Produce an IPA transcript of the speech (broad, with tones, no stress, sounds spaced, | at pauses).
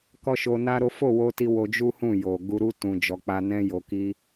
k ɔ˦ ʃ o˧ n a˦ ɾ o˦ f o˦˨ w o˧ t i˧ w o˧ d͡ʒ u˦ h ũ˦˨ j o˨ ɡ u˧ ɾ u˦ t ũ˧ d͡ʒ ɔ˧ k͡p a˦ n ɛ̃˦ j o˧ k i˦